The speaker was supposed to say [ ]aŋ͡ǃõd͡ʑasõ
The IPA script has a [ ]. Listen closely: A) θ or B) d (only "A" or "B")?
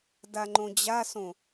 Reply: B